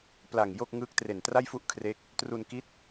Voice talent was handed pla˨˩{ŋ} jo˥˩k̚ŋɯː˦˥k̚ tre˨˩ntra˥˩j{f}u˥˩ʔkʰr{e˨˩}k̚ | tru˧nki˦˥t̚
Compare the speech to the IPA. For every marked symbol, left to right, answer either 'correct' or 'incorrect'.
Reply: correct, correct, incorrect

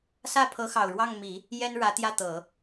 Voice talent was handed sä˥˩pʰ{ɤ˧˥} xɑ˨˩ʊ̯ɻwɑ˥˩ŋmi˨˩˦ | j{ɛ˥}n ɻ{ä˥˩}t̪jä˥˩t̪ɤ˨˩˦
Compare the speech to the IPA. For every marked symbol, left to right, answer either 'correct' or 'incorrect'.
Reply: correct, correct, incorrect

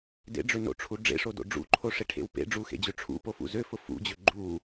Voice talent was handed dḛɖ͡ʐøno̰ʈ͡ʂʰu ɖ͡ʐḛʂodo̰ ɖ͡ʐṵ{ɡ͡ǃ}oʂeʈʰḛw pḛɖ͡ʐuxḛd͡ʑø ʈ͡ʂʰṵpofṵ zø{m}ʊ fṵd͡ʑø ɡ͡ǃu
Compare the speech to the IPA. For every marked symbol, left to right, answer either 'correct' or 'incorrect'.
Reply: incorrect, incorrect

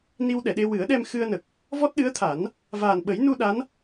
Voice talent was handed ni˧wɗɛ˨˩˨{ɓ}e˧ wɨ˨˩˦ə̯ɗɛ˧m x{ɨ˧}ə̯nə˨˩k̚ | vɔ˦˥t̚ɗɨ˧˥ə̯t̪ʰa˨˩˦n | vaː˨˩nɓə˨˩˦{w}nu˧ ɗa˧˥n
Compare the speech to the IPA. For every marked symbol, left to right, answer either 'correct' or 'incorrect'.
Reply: incorrect, correct, incorrect

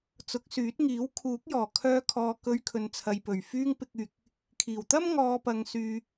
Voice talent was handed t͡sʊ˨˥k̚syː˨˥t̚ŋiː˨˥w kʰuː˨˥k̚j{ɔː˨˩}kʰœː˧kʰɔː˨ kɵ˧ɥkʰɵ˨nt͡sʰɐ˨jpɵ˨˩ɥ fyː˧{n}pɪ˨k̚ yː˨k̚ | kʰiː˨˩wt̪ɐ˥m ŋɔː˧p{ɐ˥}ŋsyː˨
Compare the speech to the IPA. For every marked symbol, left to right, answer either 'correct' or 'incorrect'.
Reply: correct, incorrect, incorrect

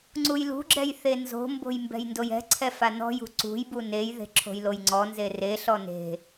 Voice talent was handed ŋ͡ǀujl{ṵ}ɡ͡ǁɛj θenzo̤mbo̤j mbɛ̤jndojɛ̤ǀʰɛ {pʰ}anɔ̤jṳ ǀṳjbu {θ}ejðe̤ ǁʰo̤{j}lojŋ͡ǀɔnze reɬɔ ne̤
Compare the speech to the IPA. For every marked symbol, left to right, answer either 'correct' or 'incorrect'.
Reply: incorrect, incorrect, incorrect, correct

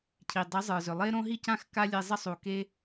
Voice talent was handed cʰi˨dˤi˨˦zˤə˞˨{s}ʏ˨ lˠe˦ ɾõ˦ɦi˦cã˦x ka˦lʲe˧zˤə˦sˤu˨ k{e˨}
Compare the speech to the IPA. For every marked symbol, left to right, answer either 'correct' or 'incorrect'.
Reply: incorrect, incorrect

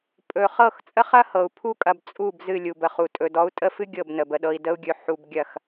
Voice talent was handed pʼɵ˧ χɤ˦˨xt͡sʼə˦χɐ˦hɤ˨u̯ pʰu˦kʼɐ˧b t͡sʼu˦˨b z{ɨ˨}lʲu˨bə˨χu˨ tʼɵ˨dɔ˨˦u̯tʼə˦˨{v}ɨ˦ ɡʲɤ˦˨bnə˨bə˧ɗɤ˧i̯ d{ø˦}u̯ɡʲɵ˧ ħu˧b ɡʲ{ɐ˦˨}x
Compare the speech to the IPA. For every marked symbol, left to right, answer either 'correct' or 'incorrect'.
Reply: incorrect, incorrect, incorrect, correct

